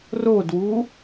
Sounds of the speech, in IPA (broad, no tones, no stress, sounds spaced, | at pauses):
r o d w u